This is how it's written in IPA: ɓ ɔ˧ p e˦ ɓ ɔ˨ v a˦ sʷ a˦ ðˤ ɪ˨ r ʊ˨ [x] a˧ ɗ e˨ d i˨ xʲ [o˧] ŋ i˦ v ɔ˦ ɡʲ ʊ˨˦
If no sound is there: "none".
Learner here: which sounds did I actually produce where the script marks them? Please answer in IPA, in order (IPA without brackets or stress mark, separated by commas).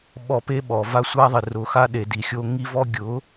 x, o˧